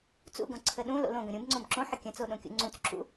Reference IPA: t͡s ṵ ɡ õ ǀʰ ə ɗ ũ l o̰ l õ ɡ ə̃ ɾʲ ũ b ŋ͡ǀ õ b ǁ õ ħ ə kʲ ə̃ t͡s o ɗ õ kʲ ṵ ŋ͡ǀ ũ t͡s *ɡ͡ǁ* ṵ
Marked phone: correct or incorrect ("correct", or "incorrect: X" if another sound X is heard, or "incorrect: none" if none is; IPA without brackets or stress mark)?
incorrect: ǁ